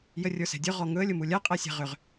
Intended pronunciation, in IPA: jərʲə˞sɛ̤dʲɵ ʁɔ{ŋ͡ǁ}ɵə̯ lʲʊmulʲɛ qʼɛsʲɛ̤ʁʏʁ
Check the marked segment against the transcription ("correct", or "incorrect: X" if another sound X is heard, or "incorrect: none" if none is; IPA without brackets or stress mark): incorrect: ŋ